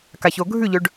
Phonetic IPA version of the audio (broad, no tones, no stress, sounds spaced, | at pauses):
k a ç o ɡʱ ʉ ʎ ɵ ɖ